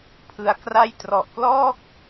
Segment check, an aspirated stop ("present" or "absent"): present